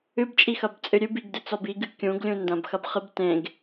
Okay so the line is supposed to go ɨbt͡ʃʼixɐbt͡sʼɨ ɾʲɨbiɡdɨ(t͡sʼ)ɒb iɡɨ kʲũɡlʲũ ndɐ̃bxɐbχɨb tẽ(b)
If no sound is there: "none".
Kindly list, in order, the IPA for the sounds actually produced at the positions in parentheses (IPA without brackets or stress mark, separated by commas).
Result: t͡s, ɡ